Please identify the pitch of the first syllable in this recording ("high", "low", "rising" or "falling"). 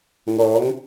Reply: rising